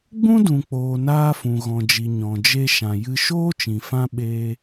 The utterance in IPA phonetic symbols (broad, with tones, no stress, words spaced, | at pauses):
ɡ͡bũ˦dũ˨k͡poː˨ naː˧fũ˨ ɣɔ̃˨d͡ʒi˨ ɲɔ̃˨d͡ʒe˧ ʃã˨jɨ˧ ʃoː˦t͡ʃĩ˨fã˧ ɓeː˧